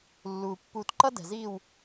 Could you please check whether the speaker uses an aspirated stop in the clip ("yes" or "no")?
no